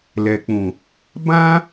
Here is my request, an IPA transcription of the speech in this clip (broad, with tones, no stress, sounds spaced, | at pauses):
l ɛ˨ k͡p ũ˨ | b ã˦